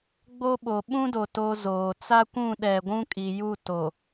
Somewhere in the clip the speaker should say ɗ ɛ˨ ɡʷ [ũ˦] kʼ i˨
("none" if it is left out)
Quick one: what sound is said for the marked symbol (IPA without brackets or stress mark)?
ũ˦